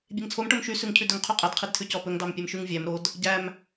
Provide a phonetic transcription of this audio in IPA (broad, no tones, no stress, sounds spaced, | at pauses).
bʲ e ŋ t͡sʰ o m ʈ o m ʃ y s ʉ ŋ cʰ ʉ d ɵ ŋ qʰ ʉ qʼ ɛ d qʰ i d tʰ ʉ c ɔ p ɵ ŋ d ɑ m pʲ ɛ m ʃ ʉ ŋ vʲ æ m ɾ o d | ɟ æ m